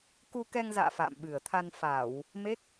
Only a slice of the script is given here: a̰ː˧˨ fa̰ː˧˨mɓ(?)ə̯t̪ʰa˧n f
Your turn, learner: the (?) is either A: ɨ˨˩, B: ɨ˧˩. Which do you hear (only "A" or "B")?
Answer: A